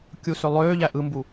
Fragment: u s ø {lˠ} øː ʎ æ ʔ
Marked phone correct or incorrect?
correct